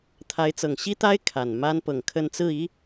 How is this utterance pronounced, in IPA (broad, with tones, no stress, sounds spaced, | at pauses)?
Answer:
t̪ʰ a˧˥ ɪ̯ t͡s ɤ˨˩ ŋ ɕ i˥ t̪ a˥ ɪ̯ kʰ a˨˩ n m a˥ n p ɤ˨˩ ŋ kʰ ə˥˧ n t͡s ɹ̩˥˩ i˥